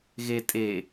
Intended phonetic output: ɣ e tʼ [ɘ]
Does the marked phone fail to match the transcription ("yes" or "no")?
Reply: yes